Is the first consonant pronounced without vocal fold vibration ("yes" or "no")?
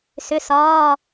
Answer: yes